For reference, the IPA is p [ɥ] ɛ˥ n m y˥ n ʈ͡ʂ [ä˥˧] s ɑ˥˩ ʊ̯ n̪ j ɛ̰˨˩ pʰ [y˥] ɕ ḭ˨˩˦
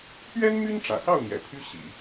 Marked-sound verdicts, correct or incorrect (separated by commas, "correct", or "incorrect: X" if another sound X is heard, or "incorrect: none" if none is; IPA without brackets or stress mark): correct, incorrect: ä̰˨˩, correct